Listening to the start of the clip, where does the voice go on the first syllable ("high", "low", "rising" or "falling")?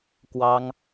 high